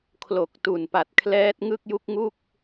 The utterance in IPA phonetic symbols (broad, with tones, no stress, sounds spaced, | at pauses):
kʰ l o˨˩ k̚ t u˨˩ n p a˨˩ t̚ kʰ l ɛː˦˥ t̚ ŋ ɯ˥˩ k̚ j u˥˩ k̚ ŋ u˥˩ k̚